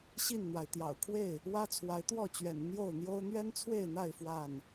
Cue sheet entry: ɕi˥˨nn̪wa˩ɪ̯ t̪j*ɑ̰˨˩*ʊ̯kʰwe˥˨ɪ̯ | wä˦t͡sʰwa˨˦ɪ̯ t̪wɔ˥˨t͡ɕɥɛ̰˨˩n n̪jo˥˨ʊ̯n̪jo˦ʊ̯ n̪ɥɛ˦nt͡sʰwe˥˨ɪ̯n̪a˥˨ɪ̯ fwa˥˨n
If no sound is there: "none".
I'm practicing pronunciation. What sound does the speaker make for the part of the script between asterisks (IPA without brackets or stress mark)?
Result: ɑ̰˨˩